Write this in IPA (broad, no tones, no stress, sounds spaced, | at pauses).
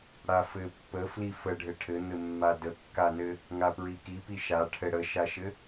ɽ a f ɘ pː ə f l i f ə ɖʱ ɘ ʈʰ ɘ n̪ ɘ mː a d ə kː a n ɘ | ŋ a p ɹ i k i p i ʃ a ʈʰ ɘ ɽ ə ʃ a ʃ ɘ